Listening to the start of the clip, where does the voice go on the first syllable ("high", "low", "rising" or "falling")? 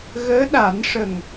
rising